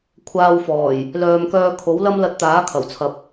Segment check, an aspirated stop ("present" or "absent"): present